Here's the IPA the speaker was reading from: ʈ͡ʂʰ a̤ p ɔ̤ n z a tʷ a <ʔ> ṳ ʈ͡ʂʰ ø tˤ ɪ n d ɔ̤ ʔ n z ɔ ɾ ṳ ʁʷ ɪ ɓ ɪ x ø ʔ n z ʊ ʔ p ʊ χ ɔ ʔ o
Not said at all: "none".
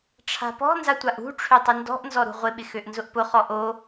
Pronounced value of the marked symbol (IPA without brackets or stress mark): ʔ